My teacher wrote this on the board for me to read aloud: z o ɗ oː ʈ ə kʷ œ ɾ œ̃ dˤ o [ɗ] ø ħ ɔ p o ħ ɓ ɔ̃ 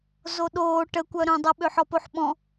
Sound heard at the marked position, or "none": ɓ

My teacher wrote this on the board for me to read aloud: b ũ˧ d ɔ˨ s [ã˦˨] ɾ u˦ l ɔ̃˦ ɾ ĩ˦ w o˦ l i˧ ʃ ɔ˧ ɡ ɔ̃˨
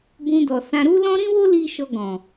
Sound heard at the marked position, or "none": ã˧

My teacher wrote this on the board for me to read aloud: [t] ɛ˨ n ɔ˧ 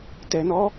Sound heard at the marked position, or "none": t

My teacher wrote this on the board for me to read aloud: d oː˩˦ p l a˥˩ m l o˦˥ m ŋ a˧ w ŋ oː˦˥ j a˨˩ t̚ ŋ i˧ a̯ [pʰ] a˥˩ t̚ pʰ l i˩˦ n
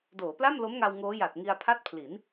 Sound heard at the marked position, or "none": pʰ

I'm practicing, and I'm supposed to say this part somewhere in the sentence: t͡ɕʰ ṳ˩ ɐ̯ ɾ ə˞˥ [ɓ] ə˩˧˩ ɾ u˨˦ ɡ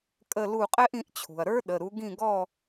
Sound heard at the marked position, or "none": ɗ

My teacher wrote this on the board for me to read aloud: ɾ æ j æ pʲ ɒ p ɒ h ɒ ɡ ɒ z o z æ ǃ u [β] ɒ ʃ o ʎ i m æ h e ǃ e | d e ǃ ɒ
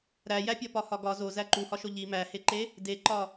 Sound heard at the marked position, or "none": h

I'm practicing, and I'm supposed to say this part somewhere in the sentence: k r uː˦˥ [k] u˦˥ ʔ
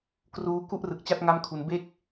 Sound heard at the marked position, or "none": k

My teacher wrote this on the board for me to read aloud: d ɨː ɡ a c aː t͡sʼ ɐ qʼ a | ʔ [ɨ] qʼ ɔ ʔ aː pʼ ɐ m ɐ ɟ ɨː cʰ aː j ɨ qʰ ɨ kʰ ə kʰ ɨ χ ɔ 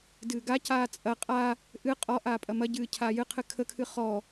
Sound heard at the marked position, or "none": ɨ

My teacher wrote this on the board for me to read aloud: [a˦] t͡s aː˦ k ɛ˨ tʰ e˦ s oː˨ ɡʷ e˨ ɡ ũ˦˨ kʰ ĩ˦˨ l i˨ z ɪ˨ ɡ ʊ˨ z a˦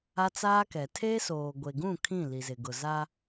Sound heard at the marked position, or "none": a˦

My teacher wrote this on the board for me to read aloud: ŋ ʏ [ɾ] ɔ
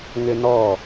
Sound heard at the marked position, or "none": n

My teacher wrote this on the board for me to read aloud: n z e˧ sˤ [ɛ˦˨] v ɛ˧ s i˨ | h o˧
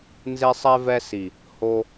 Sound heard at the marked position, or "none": ɛ˧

